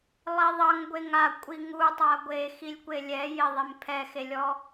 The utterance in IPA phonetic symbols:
lˠ i ðˤ ʌ ŋ ɡʷ e ŋ a kʷʼ i ŋ u tˤ a ɡʷ e x i lʲ kʷ e lʲ ɛ j ɪ ðˤ e m pʰ ɛ x e lʲ ɔ

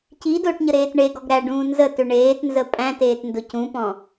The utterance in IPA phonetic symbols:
c i d ʊː ʈ ɲ ə ɾ eː t ɳ e ɡ ɔ ɡ ɾ æ ɖ ũː n z ə t ʏ ɳ eː t n z ə pʼ æ̃ t eː t n d ʊ c ũ p ɔ̃

